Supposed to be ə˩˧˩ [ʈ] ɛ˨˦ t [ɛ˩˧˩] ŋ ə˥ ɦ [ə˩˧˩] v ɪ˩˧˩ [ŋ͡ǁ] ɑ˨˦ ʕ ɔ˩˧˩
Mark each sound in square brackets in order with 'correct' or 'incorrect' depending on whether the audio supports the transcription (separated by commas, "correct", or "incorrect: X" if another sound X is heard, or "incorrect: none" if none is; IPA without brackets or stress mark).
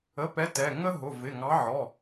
incorrect: p, correct, incorrect: ʊ˩˧˩, incorrect: ŋ